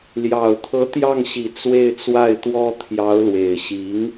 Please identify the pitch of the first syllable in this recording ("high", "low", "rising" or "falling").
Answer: low